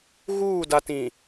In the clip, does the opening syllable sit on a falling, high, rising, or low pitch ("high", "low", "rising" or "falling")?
falling